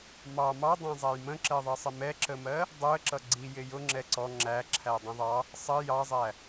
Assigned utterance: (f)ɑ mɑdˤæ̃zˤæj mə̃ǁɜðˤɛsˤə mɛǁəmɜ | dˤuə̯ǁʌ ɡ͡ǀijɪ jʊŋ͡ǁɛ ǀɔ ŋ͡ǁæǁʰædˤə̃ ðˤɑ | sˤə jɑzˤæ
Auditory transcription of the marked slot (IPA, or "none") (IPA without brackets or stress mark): m